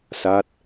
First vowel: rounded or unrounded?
unrounded